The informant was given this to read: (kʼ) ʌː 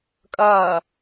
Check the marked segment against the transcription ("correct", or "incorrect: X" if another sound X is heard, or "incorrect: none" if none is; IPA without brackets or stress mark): correct